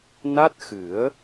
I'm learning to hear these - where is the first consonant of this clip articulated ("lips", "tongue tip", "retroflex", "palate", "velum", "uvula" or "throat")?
tongue tip